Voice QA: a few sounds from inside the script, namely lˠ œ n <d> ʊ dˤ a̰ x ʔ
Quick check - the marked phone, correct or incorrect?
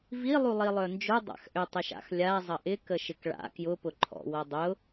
incorrect